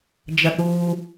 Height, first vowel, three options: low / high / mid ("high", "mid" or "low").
low